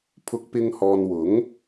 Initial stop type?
aspirated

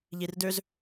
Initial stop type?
plain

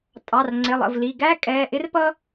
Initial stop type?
ejective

